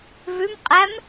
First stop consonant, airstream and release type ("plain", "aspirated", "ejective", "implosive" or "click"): ejective